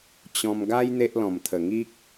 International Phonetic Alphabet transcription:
t͡ɕɔ̃˧mɡa˦j n̪e˦ʔlɔ̃˨˩mt̪ʰə˨˩ ŋi˦k̚

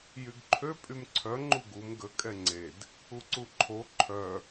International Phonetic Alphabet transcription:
jyɡǃʰø pʼymǀʰœ ŋ͡ǃuɡum ɡə kʼɛŋ͡ǀed | uǀuǃʰo ǃʰœ

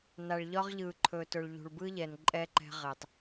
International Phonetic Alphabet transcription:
na˨ɭʎɒ˦ʁʎɯː˨ ǃʰɵː˨tɵ˨ɭ ʎṳ˨ɭbɯ˦ʎɛ˨n ǃʼɛ˦ǃɛ̤˦ ʁɪ˨tˤ

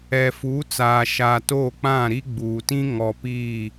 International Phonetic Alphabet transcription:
ɛ˨fuː˨˦t͡saː˨ ʃaː˨toː˦˨k͡pã˦˨ɾi˦ ɡ͡buː˨tĩ˦ ŋɔ˨ piː˦˨

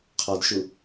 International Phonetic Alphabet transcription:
qʰɔdʃu

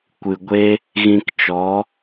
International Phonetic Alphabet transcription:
kʷɨ˨ɡʷe˦ | ɣĩ˧kt͡ʃɔ˨˦

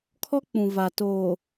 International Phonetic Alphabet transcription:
kʰɔ˦k͡pũ˨ va˨toː˨

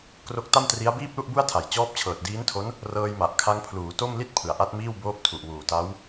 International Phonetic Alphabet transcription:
kro˦˥k̚ta˥˩mtri˦˥a̯ biː˥˩p̚lu˥˩ʔbu˥˩a̯tʰa˨˩j t͡ɕɔː˦˥p̚t͡ɕʰɤː˨˩t̚ diː˦˥ntʰo˦˥n | rɤː˧jma˨˩ʔ kʰa˦˥ŋpʰluː˩˦ to˥˩mli˥˩t̚ pʰɯ˩˦a̯ʔa˦˥t̚miː˥˩w boː˦˥p̚tʰu˨˩ʔwuː˨˩ ta˦˥w

